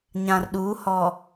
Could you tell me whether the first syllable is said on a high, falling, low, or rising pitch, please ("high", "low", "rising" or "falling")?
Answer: low